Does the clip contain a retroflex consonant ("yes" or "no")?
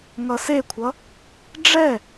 yes